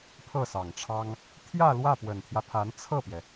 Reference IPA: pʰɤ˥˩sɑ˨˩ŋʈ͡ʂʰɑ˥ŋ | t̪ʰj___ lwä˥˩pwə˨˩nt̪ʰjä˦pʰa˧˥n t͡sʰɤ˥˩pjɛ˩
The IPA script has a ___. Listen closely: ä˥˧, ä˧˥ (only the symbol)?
ä˥˧